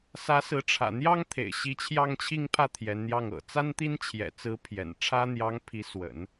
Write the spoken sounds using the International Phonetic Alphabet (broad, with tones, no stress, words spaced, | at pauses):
sä˧˥sɹ̩˧˥ ʈ͡ʂʰä̰˨˩ n̪jɑ˥ŋ t̪ʰḛ˨˩ɪ̯ɕi˧˥t͡ɕʰjɑ˥˧ŋ t͡ɕʰi˥˧ŋpʰä˥˩ t̪ʰjɛ˧˥nn̪jɑ˥˩ŋ ɤ̰˨˩ t͡sa˥nt̪i˥nt͡ɕʰjɛ̰˨˩t͡sɹ̩˧˥ pʰjɛ̰˨˩nʈ͡ʂʰä˥ n̪jɑ˧˥ŋpʰi˧˥ swə̰˨˩˦n